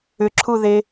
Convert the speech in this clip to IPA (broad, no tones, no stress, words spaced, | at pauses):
ʏǁʰuðe